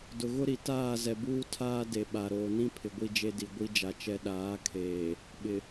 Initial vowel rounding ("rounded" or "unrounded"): rounded